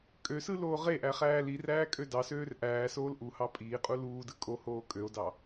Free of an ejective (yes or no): no